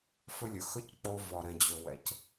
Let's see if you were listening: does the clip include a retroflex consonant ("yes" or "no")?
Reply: no